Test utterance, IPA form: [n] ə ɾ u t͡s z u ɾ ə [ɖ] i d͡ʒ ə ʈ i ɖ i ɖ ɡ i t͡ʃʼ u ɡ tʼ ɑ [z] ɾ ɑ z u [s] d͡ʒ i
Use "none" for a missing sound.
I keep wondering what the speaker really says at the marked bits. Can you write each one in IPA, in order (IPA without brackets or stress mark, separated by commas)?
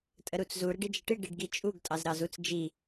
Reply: tʼ, ɖ, z, t͡s